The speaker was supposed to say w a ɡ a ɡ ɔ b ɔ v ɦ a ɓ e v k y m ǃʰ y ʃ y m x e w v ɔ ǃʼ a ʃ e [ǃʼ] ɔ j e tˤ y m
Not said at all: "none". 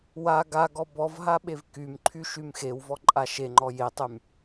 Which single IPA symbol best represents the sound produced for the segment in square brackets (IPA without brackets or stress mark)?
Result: ŋ͡ǃ